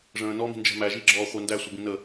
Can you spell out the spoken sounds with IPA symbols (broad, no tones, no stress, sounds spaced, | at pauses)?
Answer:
ʐ ə̃ː n ɔ m i̤ n d͡ʒ ɛ̤ m æ ʒ i ɡ͡ǁ ɔː χʷ æ n d æ sʷ ə b ĩ n ə